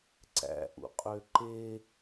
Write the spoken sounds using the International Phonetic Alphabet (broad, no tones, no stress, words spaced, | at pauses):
ǀæ̰ʔṵqʼø ǃe